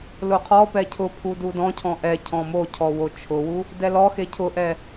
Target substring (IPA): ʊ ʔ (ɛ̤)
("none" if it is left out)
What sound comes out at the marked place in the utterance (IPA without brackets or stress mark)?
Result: ɛ